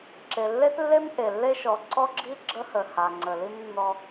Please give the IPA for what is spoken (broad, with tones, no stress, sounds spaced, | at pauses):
ǁ e˨ lː e˦ t lː e˦ m ʔ e˨ lː e˦ ʃ ɔ˨˦ ǀ ɔ˦ ɡ͡ǁ i˦ ɡ͡ǁ ə˦ h ə˨ h a˨ ŋ͡ǀ ə˨ l i˦ m nː ɔ˦